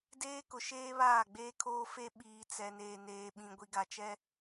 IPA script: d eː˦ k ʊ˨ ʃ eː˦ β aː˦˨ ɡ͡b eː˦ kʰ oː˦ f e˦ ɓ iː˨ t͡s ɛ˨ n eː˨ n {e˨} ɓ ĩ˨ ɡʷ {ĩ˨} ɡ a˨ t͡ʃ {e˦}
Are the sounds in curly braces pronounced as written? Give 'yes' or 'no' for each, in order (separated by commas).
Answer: no, no, no